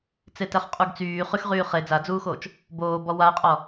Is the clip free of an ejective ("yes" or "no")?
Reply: no